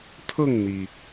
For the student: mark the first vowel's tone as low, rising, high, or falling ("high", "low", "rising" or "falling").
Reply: falling